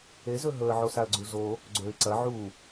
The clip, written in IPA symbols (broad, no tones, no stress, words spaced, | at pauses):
ezɵ ɦɵə̯ʕosaə̯ɡ͡ǀu zo | ɡ͡ǀɵɪ̯ ǀɐ ʕu